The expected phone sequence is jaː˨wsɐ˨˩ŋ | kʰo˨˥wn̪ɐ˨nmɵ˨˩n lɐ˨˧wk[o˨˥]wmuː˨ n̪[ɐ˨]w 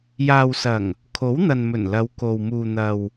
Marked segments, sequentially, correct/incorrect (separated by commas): incorrect, correct